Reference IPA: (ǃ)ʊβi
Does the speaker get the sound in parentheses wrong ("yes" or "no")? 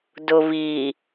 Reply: yes